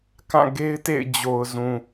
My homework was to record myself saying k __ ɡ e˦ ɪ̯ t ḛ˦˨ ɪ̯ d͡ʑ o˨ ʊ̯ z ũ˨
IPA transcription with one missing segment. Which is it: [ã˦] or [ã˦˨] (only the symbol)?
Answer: ã˦˨